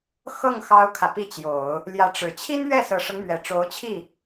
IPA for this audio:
x ɤ˥˩ ŋ x ɑ˥ ʊ̯ kʰ ä˨ p i˥˩ t͡ɕ j o˨˩˦ ʊ̯ | l j ä˧˥ ʈ͡ʂ ɻ̩˨˩ t͡ɕʰ i˥ n ɥ ɛ˥˩ s ɤ˨˩ ʂ ɤ˦ ŋ m ɥ ɛ˨˩ ʈ͡ʂ o˧˥ ʊ̯ t͡ɕʰ i˥˩

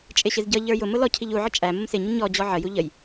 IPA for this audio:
t͡ʃʼ ɪ ɕ ɪ z ɟ ʌ ʎ ə˞ j ʊ m ʊ l ɔ cʰ i ʎ u ʕ ə t͡ʃʼ æ m ʊ m s ɪ ɲ ə ɲ ɔ d͡ʑ ɔ ʕ ə j u ʎ ə j

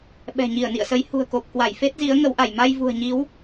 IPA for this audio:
ɓ ɛ̤˨˩ ɲ i˧˩ ə̯ n ḭ˧˨ ə̯ s ə˨˦ j h ṳ˨˩ ə̯ k o˨˩ p̚ k w a˧˩ j f e˦˥ t̚ z i˨˦ ə̯ ŋ ə˨˦ w ʔ a˧˩ j m a˧ j v ṳ˨˩ ə̯ ɲ i˨˦ w

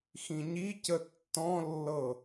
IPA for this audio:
x ĩ ɲ i c ə tː ɔ̃ lː ɤ

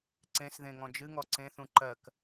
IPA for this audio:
ǀ ẽ s ð ẽ ŋ ɔ̃ d͡ʒ ɨ ŋ ɔ ǀ ẽ θ ũ ǃ ɜ k

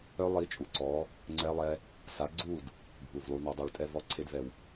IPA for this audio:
œ˦˥ lˠ i˨˦ t͡ʃʼ u˨˩ ǀ ɔ˨˦ | ŋ͡ǀ ɛ˦˥ lˠ ɛ˦˥ | s a˨˦ ɡ͡ǀ u˥˨ d | bʱ u˨˩ v lˠ u˨˦ n a˨˦ dˤ u˨˩ ɭ tʼ ɛ˥˨ v ɔ˥˨ ǀʰ e˦˥ d v ɛ˨˩ w

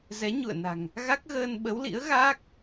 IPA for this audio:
z ɛ˨˦ ɲ ṵ˧˨ ə̯ n a̤˨˩ ŋ | ɣ a˦˥ k̚ ɣ əː˧ n ɓ ə˨˦ w l ḭ˧˥ ə̯ ɣ aː˦˥ k̚

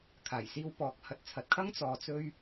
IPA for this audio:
kʰ aː˨˩ j s iː˧ w p ɔː˨˥ k̚ h ɐ˨ t̚ t͡sʰ ɐ˨˥ t̚ kʰ ɐ˥ ŋ t͡s ɔː˨ t͡s ɵ˧ ɥ

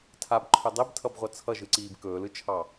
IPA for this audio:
tʰ a b ǃʰ ɵ dˤ i b tʰ ʌ b ʁʷ ʌ t͡sʰ ʌ ʒ ɯ ǀ iː b k ɵː l ɯ t͡ʃʰ ɑ

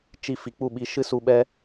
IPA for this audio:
t͡ʃ i˧ f i˨ k͡p u˦˨ ɓ i˧ ʃ ɨ˦ s u˧ ɓ ɛ˦

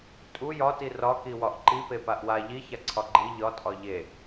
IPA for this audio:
tʼ u j ɒ t i r ɒ k i w ɒ ʔ ǃ i p e p a ʔ w a ʎ i ç a ǀʰ ɒ ɡ͡ǃ i ʎ ɒ tʼ ɒ ʎ e

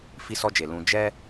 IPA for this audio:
f i˧ s ɔ˧ d͡ʒ e˨ l ũ˧ d͡ʒ ɛ˦

